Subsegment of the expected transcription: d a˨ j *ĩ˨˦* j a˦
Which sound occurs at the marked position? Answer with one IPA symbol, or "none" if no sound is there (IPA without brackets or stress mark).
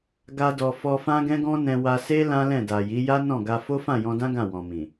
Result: i˨˦